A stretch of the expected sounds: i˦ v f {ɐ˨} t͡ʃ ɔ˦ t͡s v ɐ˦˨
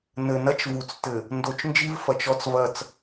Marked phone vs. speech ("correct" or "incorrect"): correct